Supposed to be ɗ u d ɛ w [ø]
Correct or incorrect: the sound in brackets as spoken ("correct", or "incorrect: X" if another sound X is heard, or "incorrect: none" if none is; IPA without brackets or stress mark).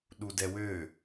correct